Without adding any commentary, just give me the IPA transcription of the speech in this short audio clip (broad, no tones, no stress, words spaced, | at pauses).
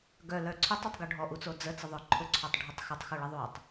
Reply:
ɡœlœ ǀʰœtˤotˤɡʊ ɖʱɔʔut͡so d͡zət͡səðˤœ ǃʰʊǀʰœtˤɖʱotˤ xətˤxoɭəðˤotˤ